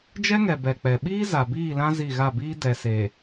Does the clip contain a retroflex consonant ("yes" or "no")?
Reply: no